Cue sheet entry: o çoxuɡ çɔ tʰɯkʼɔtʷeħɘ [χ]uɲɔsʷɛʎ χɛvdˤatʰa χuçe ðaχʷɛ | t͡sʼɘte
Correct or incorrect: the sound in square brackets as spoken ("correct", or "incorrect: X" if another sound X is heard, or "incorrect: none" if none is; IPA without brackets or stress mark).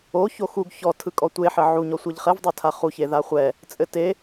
incorrect: ʕ